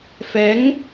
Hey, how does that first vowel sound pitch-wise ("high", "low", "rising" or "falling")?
rising